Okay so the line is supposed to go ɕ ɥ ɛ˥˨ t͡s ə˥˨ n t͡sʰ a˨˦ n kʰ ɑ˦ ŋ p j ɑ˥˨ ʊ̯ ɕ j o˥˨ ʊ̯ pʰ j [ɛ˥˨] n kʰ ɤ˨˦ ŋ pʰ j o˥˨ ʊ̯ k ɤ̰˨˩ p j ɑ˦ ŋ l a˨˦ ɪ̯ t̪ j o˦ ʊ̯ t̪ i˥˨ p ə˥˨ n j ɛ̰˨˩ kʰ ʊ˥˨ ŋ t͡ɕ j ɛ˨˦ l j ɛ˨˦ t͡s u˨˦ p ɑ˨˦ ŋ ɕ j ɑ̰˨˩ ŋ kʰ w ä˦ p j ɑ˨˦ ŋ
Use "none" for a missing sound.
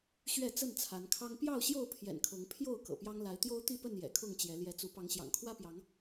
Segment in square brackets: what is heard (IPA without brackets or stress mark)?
ɛ̰˨˩